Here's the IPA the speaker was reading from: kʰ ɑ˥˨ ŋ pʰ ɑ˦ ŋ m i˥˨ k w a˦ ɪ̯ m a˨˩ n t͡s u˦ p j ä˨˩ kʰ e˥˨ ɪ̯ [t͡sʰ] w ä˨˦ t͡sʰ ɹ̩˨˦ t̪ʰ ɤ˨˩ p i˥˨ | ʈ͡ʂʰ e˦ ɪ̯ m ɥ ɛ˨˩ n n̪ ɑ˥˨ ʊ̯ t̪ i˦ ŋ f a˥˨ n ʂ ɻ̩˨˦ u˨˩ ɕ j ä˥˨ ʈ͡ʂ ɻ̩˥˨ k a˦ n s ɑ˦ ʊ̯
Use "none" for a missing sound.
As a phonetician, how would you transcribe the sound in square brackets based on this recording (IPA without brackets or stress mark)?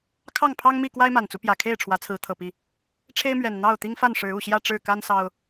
ʈ͡ʂʰ